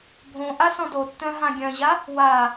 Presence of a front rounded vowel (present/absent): present